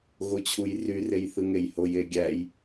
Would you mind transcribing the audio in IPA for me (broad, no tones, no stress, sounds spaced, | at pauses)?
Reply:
ɣ o t͡ɕʰ u j r y r e j θ ɯ ŋ e j h o j e ɡʲ æ j